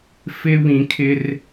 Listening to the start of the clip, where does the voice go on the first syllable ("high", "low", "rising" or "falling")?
high